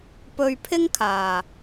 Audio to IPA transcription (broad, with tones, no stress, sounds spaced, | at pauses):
p ɵ˧ ɥ pʰ ɪ˥ ŋ kʰ aː˨